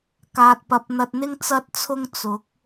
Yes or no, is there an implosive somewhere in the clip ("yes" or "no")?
no